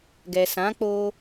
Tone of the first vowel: low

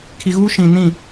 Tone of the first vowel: low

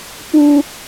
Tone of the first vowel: high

